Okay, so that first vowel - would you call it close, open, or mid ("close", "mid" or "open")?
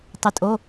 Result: close